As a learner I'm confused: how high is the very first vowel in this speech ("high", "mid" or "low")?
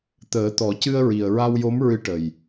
mid